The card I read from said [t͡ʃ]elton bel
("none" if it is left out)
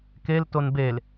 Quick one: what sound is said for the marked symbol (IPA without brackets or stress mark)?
k